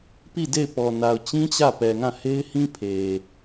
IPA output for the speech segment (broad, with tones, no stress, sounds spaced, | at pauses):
p i˦˨ d e˦˨ ɪ̯ p ɔ˨ n a˨ ʊ̯ t͡ɕ ĩ˦ t͡ɕ ä˦˨ p ɛ˨ ŋ ã˦˨ h e˦ ɪ̯ h ĩ˦ pʰ e˨